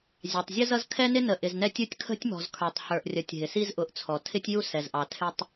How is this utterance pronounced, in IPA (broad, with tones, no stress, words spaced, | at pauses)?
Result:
zʲɑ˨tˤzʲə˦zʌ˦z kʰɛ˦nɪ˦nə˨ ʔɪ˨znɛ˦tʲu˦tʲ kʰə̤˦tʲmɔ̤˨z kʰə˞˨tˤhə˞˨ʔrʲʌ˨tʲ ɦɪ˨si˦zʔʊ˨˦ʔt͡sʰɔ˨ tʰɪ˦tʲju˦sɛ˨zʔɑ˨ tʰɪ˦tˤ